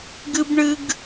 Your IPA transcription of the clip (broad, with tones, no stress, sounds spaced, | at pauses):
ɡ ɨ˦ b ɳ ɨ˦ ɡ